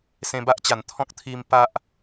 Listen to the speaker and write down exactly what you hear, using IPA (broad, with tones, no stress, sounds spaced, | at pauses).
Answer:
s ẽ˧ b a˦ ʔ t͡ɕ a˨˩ n t̪ʰ ɔ̃˦ k̚ t̪ʰ i˧ m p a˦ ʔ